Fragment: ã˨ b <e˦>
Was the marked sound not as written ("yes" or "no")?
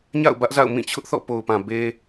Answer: no